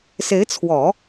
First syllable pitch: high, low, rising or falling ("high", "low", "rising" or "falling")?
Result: rising